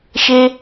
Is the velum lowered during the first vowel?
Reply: no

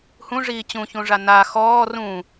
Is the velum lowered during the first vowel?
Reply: yes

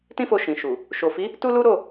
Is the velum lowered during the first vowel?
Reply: yes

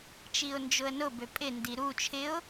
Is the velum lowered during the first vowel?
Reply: no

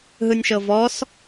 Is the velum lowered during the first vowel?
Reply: no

